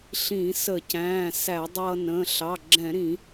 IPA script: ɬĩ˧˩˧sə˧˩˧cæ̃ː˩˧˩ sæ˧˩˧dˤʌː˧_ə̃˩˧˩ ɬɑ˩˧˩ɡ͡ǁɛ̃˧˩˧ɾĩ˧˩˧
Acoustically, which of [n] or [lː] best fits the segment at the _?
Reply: n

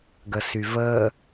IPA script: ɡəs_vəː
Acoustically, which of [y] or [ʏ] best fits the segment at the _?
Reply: y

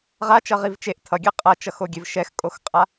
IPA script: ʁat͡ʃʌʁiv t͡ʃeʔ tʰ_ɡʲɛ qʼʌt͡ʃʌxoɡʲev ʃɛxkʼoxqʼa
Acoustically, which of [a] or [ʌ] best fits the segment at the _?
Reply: ʌ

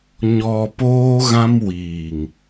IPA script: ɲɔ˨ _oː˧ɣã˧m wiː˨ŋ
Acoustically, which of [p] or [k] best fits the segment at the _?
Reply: p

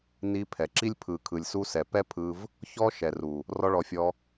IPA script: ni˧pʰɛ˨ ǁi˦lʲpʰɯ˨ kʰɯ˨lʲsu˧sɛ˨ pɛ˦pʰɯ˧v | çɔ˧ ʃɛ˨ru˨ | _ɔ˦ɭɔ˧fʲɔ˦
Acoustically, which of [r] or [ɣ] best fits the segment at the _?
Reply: r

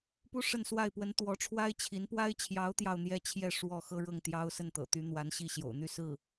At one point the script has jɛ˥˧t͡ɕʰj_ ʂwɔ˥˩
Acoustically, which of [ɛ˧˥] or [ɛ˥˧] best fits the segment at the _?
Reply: ɛ˥˧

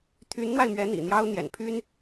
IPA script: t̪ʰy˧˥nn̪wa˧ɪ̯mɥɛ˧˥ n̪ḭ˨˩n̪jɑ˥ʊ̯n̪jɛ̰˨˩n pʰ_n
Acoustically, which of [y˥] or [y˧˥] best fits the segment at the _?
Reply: y˥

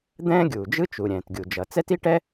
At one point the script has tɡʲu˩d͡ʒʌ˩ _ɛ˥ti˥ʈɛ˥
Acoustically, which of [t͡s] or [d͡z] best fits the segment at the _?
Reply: t͡s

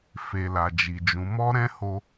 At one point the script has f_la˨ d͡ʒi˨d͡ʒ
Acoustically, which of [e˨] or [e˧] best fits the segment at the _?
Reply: e˨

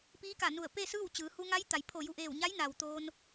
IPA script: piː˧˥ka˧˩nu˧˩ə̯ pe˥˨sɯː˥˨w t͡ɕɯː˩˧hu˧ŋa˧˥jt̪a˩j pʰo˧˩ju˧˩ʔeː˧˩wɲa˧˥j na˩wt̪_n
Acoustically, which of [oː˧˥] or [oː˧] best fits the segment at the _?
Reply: oː˧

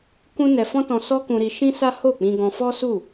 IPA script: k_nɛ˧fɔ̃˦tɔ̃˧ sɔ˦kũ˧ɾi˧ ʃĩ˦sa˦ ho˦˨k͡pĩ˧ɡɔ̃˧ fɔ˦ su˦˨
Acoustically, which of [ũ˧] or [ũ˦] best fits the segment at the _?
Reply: ũ˦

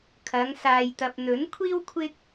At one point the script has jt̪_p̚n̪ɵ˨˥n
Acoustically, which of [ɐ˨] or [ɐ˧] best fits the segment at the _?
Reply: ɐ˨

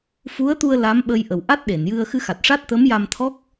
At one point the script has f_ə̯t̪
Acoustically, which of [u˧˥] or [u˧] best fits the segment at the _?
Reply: u˧˥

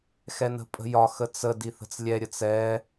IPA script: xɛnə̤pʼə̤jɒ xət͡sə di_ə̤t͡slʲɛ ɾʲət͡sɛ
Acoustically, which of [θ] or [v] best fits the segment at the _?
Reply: θ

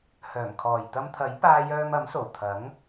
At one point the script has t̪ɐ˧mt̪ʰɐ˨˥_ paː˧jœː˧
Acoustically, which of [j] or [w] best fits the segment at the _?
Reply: j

